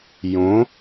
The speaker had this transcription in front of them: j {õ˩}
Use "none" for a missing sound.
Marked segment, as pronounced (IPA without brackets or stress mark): õ˩˥